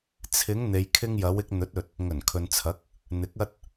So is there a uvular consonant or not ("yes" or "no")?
no